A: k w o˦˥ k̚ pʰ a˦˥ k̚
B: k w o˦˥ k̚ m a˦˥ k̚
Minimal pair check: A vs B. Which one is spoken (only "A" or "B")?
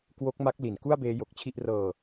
B